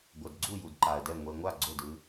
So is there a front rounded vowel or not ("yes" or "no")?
no